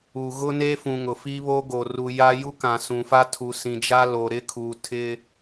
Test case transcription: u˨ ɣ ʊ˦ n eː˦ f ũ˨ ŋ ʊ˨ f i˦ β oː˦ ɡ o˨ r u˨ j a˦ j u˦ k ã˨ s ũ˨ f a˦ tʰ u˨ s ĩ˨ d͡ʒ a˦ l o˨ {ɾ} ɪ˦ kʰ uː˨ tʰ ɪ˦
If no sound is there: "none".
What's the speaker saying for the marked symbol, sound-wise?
ɾ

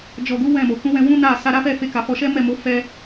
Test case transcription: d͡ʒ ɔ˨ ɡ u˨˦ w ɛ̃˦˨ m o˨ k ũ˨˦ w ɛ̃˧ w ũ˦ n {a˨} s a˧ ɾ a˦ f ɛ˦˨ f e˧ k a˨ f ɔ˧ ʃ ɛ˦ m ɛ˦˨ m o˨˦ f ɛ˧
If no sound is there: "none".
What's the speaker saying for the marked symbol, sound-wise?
a˦˨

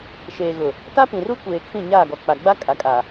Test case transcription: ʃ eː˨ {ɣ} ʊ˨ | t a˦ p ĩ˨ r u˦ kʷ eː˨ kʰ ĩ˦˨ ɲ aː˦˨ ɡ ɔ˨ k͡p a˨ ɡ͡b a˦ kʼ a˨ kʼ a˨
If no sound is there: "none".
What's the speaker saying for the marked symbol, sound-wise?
ɣ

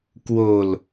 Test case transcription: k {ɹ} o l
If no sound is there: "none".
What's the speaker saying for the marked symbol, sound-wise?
w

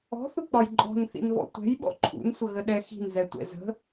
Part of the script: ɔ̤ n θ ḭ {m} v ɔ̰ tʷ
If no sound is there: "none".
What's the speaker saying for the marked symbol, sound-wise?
n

